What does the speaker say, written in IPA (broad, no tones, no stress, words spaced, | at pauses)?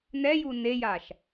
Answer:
nɛju nejaʃ